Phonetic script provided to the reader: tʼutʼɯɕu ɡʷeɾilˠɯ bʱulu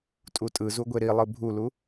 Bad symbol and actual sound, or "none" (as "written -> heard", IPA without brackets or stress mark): ɕ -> z